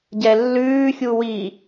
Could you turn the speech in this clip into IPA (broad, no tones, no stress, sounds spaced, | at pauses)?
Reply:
ɟ ɛ lː ʉː xʲ u w i